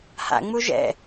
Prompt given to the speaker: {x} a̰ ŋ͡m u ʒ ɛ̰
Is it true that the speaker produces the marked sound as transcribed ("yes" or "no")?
no